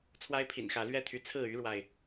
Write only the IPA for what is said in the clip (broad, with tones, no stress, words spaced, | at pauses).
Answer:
t͡sʰwa˦ɪ̯pʰḭ˨˩nxä˨˦ lɥɛ˥˨t̪ʰy˨˦t͡sʰɹ̩˥˨ y˦ɻwa˨ɪ̯